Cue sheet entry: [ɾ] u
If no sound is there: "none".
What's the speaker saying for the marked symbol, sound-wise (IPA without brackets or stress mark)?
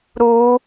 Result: ɾ